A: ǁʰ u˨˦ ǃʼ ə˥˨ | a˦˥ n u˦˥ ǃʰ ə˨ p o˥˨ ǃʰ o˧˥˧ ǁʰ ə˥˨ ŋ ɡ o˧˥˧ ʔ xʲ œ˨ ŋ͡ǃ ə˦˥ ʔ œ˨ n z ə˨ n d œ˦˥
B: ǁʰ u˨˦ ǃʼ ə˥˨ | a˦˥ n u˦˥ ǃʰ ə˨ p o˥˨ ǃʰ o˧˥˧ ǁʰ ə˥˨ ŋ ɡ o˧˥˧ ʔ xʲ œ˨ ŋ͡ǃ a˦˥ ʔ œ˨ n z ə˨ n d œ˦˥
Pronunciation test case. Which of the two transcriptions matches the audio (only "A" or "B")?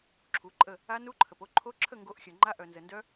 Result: B